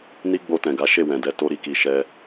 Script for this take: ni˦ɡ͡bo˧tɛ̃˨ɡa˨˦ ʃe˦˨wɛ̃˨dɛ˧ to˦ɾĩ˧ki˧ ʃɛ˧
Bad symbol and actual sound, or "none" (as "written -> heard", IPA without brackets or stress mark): ĩ˧ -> i˧